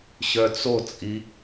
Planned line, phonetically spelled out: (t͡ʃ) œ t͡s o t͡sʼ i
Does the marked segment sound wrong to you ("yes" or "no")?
yes